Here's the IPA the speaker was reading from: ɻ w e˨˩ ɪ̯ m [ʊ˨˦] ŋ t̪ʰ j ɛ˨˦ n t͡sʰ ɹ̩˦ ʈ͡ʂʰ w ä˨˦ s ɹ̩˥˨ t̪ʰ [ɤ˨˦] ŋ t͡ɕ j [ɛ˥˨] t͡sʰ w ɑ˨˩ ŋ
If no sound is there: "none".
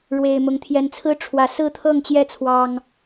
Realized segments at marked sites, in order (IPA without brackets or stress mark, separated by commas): ʊ˨˦, ɤ˥˨, ɛ˥˨